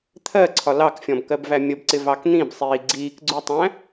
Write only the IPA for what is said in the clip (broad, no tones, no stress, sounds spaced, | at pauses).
t̪ʰ ɜ ǀʰ ɒ l ɑ k fʲ ɔ̃ b k ɜ b v æ mʲ ə b ǀ ɪ v ɑ k n̪ ĩ b sˤ iː ɡ͡ǀ iː k ɡ͡ǀ u tˤ æ̃